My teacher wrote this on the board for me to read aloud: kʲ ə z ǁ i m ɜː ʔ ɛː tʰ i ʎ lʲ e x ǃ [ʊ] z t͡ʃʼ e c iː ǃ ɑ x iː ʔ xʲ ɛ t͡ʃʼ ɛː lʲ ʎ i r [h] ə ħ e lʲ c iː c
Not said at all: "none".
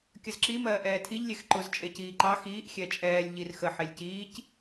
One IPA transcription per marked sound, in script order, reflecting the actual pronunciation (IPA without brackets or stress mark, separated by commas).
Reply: ʊ, x